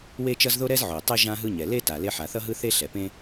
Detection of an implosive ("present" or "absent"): absent